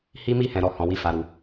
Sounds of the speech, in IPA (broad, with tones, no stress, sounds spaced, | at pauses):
h i˧ m i˧ h ɛ̃˨ ɾ ɔ˨ h ɔ̃˧ w i˦ f a˧ ɾ u˧